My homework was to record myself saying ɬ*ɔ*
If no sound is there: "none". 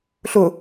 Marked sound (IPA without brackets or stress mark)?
ʊ